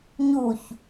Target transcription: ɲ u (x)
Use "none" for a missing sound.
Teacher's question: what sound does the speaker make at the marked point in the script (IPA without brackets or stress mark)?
ç